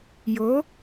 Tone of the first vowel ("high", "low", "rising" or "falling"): rising